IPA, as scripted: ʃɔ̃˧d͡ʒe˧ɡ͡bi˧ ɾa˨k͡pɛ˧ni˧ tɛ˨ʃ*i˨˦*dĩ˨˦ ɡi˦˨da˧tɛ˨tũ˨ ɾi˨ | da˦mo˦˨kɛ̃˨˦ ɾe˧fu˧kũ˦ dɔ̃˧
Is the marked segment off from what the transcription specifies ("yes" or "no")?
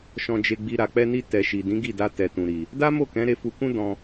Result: yes